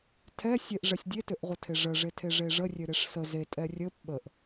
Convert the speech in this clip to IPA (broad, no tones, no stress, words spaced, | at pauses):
tʰɛsʲeʔ ʐɛsʲdʲetøʔʁʷə tʰeʐəʐetʰe ʐeʐərʲø ɾeʂsə zetʼɛ rʲəp ɓəʔ